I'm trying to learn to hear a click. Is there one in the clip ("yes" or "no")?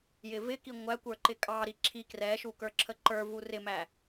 yes